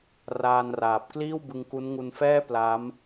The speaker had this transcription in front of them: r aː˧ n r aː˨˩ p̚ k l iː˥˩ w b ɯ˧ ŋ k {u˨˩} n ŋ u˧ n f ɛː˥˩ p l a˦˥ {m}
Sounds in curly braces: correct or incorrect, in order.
incorrect, correct

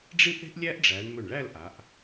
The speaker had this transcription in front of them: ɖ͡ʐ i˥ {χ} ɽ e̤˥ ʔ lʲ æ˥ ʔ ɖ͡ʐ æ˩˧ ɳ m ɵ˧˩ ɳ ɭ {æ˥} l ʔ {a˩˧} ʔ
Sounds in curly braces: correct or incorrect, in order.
incorrect, incorrect, correct

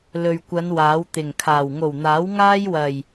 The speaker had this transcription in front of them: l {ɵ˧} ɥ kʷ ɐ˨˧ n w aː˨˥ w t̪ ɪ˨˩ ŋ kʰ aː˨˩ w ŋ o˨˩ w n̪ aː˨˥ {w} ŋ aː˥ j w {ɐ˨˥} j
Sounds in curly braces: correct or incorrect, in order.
incorrect, correct, incorrect

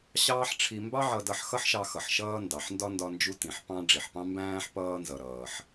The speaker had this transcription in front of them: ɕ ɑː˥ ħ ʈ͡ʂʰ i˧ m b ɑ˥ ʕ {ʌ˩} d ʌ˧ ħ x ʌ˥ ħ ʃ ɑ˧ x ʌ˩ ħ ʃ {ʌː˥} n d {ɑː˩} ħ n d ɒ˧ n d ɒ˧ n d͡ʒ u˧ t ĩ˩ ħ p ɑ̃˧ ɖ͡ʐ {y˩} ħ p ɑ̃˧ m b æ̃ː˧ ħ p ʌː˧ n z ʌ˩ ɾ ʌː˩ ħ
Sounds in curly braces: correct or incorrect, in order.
incorrect, incorrect, incorrect, incorrect

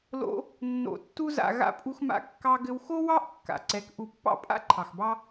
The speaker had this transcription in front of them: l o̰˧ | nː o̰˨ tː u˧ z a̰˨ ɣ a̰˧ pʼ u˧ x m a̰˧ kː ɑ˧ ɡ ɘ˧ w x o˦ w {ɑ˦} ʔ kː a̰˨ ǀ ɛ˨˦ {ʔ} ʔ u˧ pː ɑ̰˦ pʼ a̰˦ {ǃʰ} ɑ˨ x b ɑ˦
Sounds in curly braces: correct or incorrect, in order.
correct, incorrect, correct

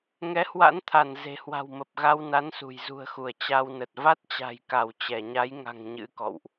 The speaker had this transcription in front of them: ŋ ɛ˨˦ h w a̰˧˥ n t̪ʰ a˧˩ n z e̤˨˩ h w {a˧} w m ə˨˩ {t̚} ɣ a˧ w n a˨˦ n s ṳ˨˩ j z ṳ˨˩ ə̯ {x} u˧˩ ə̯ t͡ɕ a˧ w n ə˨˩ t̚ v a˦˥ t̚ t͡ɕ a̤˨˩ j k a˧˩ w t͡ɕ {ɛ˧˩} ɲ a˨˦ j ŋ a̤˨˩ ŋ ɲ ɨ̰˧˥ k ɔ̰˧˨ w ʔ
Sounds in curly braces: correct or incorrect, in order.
incorrect, incorrect, correct, correct

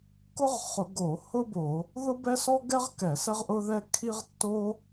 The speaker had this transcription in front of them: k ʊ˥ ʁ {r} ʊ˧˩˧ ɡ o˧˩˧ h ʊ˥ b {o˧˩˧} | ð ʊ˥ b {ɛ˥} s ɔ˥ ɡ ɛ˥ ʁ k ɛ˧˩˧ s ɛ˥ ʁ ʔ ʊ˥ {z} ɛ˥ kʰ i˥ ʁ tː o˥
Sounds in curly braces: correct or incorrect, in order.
incorrect, correct, correct, incorrect

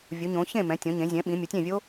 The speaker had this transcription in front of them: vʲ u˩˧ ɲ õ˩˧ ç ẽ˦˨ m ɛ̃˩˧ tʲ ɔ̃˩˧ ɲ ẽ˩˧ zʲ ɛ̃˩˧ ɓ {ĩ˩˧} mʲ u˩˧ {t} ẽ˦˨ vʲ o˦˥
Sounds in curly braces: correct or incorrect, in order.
correct, incorrect

